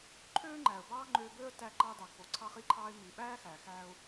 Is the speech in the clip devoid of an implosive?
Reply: no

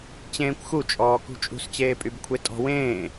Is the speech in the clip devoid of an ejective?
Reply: no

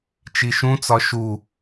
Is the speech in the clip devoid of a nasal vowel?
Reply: no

